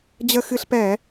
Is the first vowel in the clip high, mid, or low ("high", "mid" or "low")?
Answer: mid